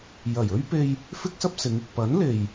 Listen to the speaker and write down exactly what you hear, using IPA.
j ɐ˨˩ j ɵ˥ ɥ p e˧ j | f ɪ˥ k̚ s ɐ˥ p̚ s ɪ˨˧ ŋ ɪ˨ k̚ p ɐ˨˥ n l e˨ j

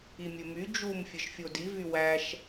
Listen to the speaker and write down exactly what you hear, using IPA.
i mʲ ɘ m y d͡ʒ u m fʲ ɘ ʃ fʲ o d i v y w æ ʃ

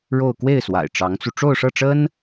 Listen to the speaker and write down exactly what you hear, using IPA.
ɻ o˥˧ ʊ̯ k w e˥˩ ɪ̯ s w a̰˨˩ ɪ̯ ʈ͡ʂ ɑ˧˥ ŋ t͡s u˧ ʈ͡ʂ o˥˧ ʊ̯ ʂ ɤ˥˩ ʈ͡ʂ ə˥ n

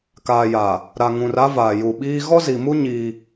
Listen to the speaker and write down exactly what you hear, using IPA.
k aː˨ j aː˨ | ɾ a˨ ŋ ũ˨ r a˦ v aː˨ j u˨ ɓ iː˦ ɣ ɔ˦ z i˨ m u˦ ɲ iː˦

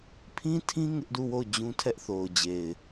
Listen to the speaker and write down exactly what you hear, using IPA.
pʰ ĩ˦ tʰ ĩ˦ ŋ ɪ˦ ʔ d u˦˨ w o˦˨ ʊ̯ d͡ʑ ũ˦ tʰ ɛ˦ ʔ θ o˨ ʊ̯ d͡ʑ e˨ ɪ̯

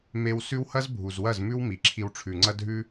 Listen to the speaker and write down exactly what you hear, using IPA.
m e˧ w s ʉ˦ w h ɐ˦ z bʱ u˨ z w ɐ˦˨ z m ʉ˦ w m i˨ ǁʰ i˧ w ʈ͡ʂʰ ʉ˨ ŋ͡ǀ ɐ˦ dʱ ʉ˦

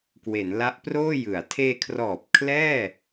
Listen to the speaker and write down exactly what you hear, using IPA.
k w e˩˦ n l a˦˥ ʔ p r oː˥˩ j ɯ˩˦ a̯ tʰ eː˧ kʰ r ɔː˨˩ p̚ kʰ l ɛː˥˩

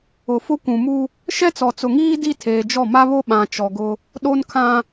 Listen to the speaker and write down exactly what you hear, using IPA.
ʊ˨ f ʊ˦ kʷ ũ˨ m u˦ | ʃ ɛ˦ t͡s ɔ˨ t͡s ʊ˨ ŋ iː˦ d i˦ tʰ eː˨ d͡ʒ ɔ˦˨ m a˦ β o˦ ɓ ã˨ t͡ʃ ɔ˨ ɡ ʊ˦ | ɗ o˦ n kʰ ã˦

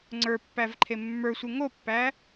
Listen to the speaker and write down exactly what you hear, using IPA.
ŋ͡ǀ ə˞ pː æ v ǃʰ e mː ə˞ sʷ ɯ ŋ o pː æ

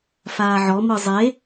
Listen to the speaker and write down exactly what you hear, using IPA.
f aː ʕ ɔ m ɯ zˤ e

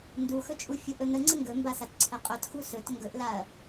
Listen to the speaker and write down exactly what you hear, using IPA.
n d u x ɵ t͡ʃʼ u fʲ u ʔ ɵ n ə ŋ͡ǀ ə ŋ ɡ ɵ m b a s a t ǀʰ ə qʼ ɵ t x u s ɵ t ŋ ɡ ɵ ʔ l a ɐ̯

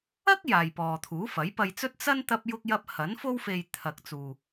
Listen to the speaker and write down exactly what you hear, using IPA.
ɐ˥ k̚ j aː˨ j p ɔː˨ t̪ʰ uː˨˥ f ɐ˨˥ j p ɐ˨ j t͡s ɵ˧ t̚ t͡s ɐ˥ n t̪ ɐ˧ p̚ j ʊ˧ k̚ j ɐ˧ p̚ h ɐ˨˥ n f o˧ w f e˨ j t̪ʰ ɐ˨ k̚ t͡s uː˨

